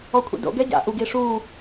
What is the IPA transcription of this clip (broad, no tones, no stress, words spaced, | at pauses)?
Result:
ɔkʷʰḭdo̰ ɡɛɟa̰ ʔuɡ iʂu